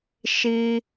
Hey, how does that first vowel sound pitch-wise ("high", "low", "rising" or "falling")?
high